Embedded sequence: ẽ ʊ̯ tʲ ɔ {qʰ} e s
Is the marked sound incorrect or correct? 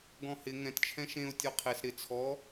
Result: correct